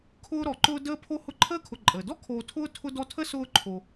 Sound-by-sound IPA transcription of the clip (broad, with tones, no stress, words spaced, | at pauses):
kʰʊː˦ɾɔ˩ǃʊː˦ dəː˥pʰo˥ hʊ˦ǃʰəː˥kʰʊ˨ǃʼəː˩ dɔ˥kʰoː˨ tʰʊː˥ tʰʊ˦dɔ˦tʰə˥ sʊː˦ǃʰo˨